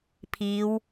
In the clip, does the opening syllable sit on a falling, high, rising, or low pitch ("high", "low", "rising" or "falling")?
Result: rising